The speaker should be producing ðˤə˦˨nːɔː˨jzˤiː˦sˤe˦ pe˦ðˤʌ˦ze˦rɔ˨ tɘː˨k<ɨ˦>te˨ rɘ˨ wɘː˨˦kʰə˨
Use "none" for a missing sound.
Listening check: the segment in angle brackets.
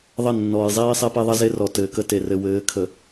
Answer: ə˦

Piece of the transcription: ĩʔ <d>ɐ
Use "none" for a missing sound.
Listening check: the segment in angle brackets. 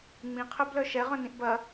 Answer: b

